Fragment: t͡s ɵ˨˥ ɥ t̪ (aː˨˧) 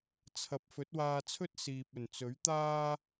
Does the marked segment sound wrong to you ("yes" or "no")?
yes